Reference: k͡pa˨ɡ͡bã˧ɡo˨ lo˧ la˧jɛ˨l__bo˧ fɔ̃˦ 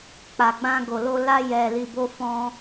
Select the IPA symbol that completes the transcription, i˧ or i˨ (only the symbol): i˨